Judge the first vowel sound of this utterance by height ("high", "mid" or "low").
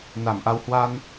low